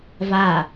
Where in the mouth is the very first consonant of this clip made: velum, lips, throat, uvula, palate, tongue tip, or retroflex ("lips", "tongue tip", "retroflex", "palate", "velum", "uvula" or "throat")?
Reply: lips